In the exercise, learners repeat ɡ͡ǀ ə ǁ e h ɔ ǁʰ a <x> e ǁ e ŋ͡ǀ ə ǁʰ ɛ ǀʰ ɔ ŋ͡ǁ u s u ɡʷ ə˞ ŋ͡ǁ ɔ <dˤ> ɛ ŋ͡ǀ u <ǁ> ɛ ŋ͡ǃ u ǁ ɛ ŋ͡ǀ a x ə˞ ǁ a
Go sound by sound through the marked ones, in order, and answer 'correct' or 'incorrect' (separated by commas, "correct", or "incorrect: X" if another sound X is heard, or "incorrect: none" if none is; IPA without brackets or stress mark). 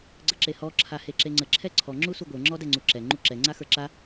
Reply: incorrect: h, incorrect: d, correct